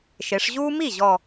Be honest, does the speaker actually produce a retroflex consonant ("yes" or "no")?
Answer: yes